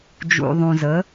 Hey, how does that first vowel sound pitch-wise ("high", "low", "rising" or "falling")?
low